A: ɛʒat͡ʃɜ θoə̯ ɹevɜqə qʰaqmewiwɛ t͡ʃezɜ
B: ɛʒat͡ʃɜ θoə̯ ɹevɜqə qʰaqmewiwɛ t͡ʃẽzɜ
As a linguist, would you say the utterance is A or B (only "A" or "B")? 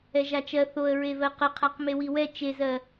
A